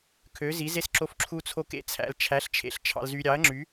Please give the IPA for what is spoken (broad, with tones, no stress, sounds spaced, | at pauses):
kʰ ø˩˧ z i˩˧ z e˧ s ǁ o˨˥ f ǁʰ u˧ t͡sʰ o˧ k ḛ˧ t͡sʰ æ̰˩˧ l t͡ʃʰ æ˨˥ ɬ t͡ʃʰ ḛ˧ ɬ t͡ʃʰ ɑ̰˧ l z y˧ ɾʲ ɑ˨˥ ɐ̯ ŋ͡ǁ y˨˥